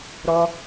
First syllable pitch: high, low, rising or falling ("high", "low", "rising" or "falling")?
high